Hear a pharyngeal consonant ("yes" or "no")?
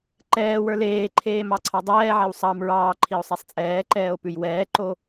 yes